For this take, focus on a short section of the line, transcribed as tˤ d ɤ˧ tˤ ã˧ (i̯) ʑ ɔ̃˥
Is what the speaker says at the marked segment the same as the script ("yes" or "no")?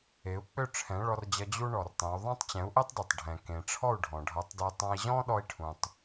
yes